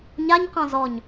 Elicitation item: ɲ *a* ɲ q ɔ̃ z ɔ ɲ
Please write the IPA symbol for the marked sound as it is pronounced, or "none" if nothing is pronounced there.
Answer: a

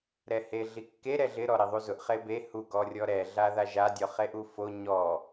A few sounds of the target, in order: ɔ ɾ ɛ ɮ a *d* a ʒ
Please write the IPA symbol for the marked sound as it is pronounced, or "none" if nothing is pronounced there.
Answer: ð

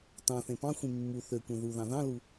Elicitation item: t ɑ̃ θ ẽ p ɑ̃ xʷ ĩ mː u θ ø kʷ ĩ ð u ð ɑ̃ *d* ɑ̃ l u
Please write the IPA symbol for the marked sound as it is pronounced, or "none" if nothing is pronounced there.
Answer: ð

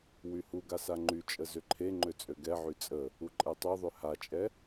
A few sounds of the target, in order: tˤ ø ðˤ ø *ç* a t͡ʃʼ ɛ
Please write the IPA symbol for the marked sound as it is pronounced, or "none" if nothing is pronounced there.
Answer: h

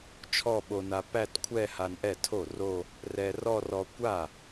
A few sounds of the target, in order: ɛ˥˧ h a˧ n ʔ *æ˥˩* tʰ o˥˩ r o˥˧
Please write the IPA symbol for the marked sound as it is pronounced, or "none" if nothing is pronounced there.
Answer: ɛ˥˩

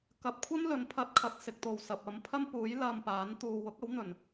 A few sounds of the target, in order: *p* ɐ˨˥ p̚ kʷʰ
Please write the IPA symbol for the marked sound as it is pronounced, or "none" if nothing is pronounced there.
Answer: k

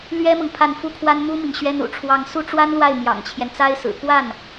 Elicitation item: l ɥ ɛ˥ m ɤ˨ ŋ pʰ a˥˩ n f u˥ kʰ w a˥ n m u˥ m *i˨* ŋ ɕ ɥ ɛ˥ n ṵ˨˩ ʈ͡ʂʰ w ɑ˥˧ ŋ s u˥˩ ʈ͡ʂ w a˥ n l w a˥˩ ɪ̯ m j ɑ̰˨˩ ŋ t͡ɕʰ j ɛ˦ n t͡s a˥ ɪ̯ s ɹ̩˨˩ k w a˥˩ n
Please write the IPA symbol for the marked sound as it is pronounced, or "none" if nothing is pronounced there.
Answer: i˨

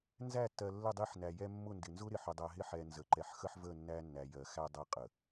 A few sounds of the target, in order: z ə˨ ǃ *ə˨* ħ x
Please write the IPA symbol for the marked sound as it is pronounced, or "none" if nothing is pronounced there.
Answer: ɛ˨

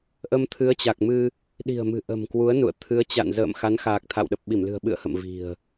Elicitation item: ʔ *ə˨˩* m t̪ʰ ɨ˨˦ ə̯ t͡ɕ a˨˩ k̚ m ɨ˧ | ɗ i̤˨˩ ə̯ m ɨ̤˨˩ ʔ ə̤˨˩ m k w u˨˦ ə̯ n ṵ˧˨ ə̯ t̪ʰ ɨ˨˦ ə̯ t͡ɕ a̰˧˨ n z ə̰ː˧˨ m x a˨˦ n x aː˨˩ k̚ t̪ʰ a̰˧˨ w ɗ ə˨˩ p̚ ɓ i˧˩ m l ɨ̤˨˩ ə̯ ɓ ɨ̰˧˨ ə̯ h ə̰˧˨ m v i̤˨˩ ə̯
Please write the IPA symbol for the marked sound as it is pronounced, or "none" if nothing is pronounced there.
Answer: ə˧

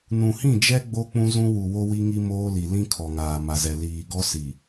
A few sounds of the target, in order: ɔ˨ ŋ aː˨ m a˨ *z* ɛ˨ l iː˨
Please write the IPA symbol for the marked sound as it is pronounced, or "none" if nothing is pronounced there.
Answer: z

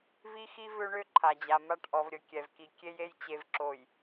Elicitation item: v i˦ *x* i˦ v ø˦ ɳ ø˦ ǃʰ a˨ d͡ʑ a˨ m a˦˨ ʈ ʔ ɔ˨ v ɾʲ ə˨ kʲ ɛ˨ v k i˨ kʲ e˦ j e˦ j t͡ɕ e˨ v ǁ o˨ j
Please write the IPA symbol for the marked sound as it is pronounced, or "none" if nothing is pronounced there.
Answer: x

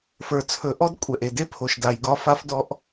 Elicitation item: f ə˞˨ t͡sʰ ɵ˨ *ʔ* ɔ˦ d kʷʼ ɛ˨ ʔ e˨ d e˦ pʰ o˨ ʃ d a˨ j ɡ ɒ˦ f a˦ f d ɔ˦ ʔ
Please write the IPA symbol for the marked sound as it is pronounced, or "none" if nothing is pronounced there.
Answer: ʔ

